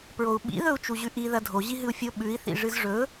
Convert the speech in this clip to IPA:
pɹou̯ɓḭ ðɵu̯t͡ʃuʑʉʔi ðɐdʱo ʑiɦɨu̯fʲo ɓʉi̯ θḭʐɨzʐɵ

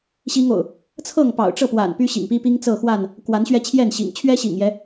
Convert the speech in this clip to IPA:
ɕi˦ŋo̰˨˩ʊ̯ | t͡sʰɤ˥˨ŋpɑ̰˨˩ʊ̯ ʈ͡ʂɤ˥˨pwa̰˨˩n py˦ɕḭ˨˩ŋpi˦pi˦ŋ t͡sɤ˥˨xwa˥˨n | kwa˨˦nɕɥɛ˧ t͡ɕʰjɛ˥˨nɕḭ˨˩ŋ t͡ɕʰɥɛ˦ɕḭ˨˩ŋjɛ˨˦

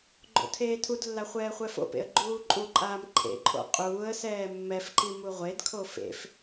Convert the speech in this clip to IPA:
ɡ͡ǃo̰tʰeːtʰudlːa χʷɛːχʷɛfo̰pḛə̯ ɡ͡ǃuːǃʼuǃʼaːm ǃʰḛǃʼo̰ qʼuːə̯sɛː mːɛfǃi muʁʷedkʰo fḛf

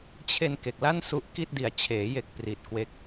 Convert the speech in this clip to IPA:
t͡ɕʰe˧n ke˨˩k̚la˥˩nsu˦˥ʔ ki˥˩t̚di˨˩a̯ t͡ɕʰeː˩˦je˨˩k̚ pri˨˩t̚kwe˦˥k̚

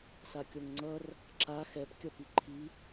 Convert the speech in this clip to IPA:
sakʲoŋŋ͡ǀʌr | ǁa xɛp kʲʌpiǃʰi

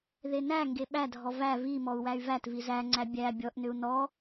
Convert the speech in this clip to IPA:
ðenæŋɡe ɓædʱɔ væ vimɔu̯ wæy̯vætvi zæŋ͡ǀæ bʲæ bʲɔʔnʏu̯ nɔ

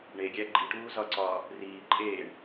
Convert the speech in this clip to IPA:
ɳeɡʲæ ɡ͡ǃiʈuːzɒǀɒː | riː ǃʼeːɳ

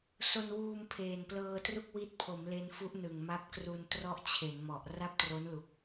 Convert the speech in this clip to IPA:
so˧nwuː˧m pʰeː˨˩nplɤː˧tru˥˩k̚ wi˦˥t̚pʰo˩˦mle˧nfu˦˥ʔ nɯ˨˩ŋma˦˥p̚kru˧n trɔ˥˩ʔt͡ɕʰe˩˦nmɔ˨˩ʔ ra˥˩p̚tro˦˥nlu˨˩k̚

